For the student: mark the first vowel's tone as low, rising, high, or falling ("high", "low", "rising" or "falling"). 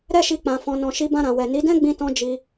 high